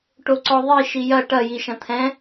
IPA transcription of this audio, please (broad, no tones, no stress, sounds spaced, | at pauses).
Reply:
ʈ o ǀ ɔ ðˤ i ʃ i j ɐ ʈ ɐ j i ʃ ɐ̃ t̪ʰ ɛ̃